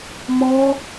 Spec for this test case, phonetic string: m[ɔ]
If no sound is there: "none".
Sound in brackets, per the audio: ɔ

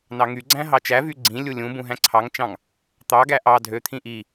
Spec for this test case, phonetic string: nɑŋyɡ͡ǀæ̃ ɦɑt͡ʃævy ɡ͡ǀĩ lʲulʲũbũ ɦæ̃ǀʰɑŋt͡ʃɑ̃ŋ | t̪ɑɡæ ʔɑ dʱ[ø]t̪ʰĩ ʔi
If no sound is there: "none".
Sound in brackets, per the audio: ø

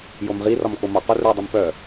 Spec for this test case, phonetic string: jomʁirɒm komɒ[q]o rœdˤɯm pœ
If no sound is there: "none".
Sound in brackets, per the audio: q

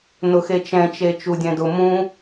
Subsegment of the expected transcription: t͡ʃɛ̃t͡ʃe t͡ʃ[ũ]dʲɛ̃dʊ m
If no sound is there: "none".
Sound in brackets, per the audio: u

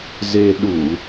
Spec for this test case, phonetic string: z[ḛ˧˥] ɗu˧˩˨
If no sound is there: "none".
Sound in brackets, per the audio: e˧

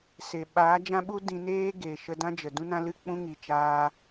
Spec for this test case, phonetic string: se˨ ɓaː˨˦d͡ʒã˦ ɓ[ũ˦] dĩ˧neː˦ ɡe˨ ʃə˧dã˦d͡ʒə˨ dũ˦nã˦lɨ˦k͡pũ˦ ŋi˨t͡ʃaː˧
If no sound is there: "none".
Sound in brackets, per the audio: u˦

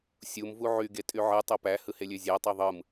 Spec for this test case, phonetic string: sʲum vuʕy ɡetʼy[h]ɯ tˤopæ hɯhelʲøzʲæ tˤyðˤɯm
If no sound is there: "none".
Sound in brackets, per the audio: ʕ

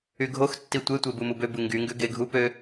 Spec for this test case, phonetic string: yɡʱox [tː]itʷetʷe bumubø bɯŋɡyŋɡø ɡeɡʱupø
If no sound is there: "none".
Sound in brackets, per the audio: tː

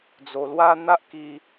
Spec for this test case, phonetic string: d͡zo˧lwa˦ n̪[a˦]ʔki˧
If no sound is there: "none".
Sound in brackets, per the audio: a˦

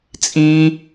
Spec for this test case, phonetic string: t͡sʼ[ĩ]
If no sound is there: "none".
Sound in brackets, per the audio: ĩ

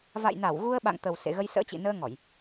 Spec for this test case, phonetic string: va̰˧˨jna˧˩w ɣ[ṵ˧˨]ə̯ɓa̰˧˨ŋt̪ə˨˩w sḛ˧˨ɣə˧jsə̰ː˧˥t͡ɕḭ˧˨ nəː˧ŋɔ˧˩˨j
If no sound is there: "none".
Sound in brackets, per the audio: u˧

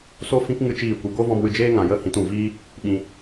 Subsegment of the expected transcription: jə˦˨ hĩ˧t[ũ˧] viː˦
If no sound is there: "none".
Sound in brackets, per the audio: ũ˦˨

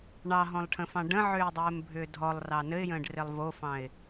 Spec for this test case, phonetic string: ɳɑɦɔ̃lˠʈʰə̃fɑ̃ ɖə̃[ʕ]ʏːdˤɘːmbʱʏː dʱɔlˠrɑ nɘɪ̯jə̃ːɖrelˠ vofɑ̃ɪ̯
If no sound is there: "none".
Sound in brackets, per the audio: ʕ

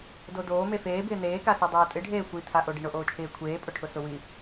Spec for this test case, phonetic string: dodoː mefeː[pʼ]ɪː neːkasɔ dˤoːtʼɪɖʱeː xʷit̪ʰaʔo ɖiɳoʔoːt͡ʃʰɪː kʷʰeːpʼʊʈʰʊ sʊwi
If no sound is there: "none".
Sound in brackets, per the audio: b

